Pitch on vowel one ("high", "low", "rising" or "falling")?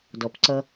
low